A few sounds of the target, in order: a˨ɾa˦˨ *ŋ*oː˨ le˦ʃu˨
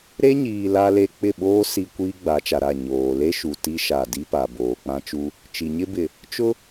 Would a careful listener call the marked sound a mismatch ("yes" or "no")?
yes